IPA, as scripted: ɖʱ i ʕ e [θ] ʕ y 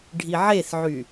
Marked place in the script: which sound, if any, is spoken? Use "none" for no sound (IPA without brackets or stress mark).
θ